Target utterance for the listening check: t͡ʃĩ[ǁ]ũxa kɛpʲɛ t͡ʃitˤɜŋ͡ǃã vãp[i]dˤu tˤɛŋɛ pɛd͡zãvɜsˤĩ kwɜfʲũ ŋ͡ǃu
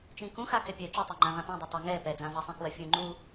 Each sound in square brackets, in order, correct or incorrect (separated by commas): incorrect, incorrect